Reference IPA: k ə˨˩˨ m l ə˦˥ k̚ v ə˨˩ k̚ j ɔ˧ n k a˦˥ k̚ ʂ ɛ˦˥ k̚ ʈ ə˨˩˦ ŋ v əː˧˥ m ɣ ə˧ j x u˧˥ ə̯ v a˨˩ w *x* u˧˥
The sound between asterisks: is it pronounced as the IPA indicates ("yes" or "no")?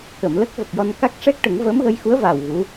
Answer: no